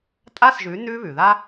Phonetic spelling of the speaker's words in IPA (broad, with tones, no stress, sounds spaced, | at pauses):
tʼ a˥ s ʒ ʉ˩˥ n ʉː˥ β ʉ˩ ð a˥